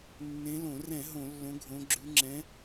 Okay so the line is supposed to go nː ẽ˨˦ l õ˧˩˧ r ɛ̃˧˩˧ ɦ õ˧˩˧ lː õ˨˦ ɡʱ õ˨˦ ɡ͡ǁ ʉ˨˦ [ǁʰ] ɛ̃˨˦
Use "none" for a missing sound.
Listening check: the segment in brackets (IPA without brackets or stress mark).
ŋ͡ǁ